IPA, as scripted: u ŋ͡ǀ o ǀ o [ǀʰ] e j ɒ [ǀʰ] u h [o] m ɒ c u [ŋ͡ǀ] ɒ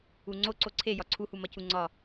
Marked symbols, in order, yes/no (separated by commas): yes, yes, no, yes